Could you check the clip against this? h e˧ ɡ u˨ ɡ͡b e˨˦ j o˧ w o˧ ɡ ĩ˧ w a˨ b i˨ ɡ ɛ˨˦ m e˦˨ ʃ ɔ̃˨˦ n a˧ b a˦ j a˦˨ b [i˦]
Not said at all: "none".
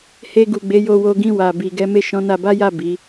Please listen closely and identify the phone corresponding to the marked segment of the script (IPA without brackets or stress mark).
i˨˦